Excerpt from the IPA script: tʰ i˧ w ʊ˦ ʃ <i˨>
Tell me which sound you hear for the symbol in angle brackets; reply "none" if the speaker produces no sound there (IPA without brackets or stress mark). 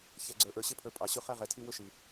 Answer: i˨